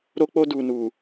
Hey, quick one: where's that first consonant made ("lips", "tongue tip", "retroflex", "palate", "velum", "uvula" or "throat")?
tongue tip